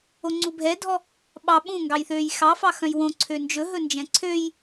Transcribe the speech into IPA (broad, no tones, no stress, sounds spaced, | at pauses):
o ŋ͡ǀ u bʱ ɛ dʱ ɔ | ɓ ɑ ɓ ũ ŋ ɡ ɑ j θ øː j x ɑ f ɑ x œ̃ j w õ ǀʰ ø n d͡ʒ ɵ ɦ ɵ n d͡ʒ ɛ̃ ǀʰ ø j